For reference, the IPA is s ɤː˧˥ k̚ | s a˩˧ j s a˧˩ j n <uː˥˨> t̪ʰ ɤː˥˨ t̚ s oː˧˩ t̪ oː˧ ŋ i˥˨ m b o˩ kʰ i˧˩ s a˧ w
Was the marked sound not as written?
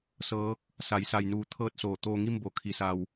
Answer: yes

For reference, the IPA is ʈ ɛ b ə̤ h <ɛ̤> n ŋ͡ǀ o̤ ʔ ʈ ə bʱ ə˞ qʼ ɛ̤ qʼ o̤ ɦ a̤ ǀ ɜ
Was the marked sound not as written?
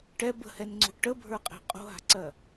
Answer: yes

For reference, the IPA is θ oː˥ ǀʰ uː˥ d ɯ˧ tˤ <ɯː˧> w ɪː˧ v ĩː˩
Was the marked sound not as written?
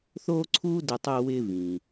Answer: yes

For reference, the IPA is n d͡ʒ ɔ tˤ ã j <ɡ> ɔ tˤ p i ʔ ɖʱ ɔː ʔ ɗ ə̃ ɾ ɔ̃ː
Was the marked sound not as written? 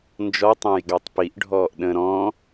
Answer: no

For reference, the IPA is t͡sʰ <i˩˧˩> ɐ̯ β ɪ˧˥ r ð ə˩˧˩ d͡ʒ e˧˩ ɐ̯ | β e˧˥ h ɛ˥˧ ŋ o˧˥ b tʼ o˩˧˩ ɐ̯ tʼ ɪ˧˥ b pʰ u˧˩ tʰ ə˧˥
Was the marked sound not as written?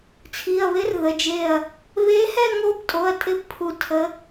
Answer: no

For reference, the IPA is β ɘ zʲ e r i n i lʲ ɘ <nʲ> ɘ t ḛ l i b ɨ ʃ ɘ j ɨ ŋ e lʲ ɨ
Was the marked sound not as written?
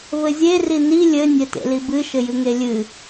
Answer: no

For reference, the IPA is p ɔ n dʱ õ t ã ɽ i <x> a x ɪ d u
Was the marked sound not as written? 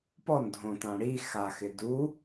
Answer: no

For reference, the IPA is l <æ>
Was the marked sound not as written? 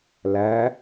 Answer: no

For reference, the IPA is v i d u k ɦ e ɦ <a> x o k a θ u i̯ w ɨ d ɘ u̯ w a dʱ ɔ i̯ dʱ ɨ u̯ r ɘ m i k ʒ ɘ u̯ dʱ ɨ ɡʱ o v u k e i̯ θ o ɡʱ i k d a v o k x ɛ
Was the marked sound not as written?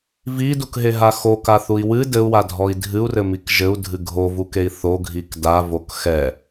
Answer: no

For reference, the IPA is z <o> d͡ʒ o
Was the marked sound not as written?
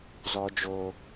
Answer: yes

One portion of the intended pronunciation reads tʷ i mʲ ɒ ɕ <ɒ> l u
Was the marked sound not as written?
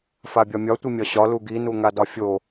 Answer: no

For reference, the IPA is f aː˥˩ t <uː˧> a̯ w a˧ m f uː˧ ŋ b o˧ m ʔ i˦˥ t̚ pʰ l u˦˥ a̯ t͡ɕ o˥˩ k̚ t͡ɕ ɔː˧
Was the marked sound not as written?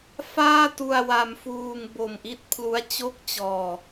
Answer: yes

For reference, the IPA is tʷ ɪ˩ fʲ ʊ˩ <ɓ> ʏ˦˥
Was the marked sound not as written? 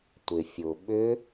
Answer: no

